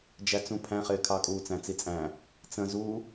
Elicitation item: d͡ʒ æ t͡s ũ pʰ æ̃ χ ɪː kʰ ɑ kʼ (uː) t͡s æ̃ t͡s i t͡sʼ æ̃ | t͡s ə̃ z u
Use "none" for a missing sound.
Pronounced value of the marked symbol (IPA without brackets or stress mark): uː